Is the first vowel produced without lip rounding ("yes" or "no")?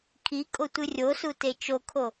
yes